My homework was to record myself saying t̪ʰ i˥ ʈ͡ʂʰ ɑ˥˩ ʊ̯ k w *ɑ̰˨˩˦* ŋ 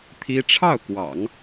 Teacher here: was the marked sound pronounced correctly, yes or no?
yes